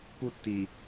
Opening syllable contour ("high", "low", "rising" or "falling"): high